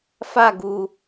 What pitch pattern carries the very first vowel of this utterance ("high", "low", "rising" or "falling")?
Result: falling